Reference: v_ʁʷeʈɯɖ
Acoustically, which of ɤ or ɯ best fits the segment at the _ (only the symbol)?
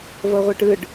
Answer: ɤ